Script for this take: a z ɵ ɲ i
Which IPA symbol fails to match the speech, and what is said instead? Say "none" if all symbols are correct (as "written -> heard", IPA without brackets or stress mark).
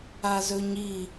none